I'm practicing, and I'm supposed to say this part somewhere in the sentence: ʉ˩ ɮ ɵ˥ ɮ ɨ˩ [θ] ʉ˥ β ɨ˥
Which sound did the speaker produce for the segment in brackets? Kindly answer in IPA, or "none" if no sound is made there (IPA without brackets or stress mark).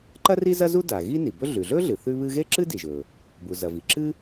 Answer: θ